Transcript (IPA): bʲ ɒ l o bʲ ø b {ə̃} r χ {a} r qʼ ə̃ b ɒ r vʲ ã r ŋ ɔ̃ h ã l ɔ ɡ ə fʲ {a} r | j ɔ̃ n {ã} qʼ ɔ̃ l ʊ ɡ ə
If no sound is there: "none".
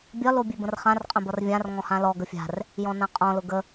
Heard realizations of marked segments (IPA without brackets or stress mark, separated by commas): ə̃, ã, a̤, ã